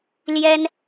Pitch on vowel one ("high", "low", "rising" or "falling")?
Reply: high